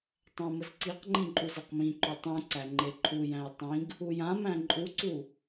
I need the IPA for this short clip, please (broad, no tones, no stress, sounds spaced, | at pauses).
tˤ æ̃ m ə z ǀ i q ŋ͡ǃ ĩ ǃʼ u z e q m ĩ ǃ o tˤ ũ ǀ æ ŋ͡ǃ e ǃʰ u j æ̃ j tˤ ĩ ɡ | u j ã m æ̃ ǃʼ u ǀ u